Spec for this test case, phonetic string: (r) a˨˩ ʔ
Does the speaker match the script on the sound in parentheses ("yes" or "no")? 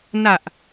no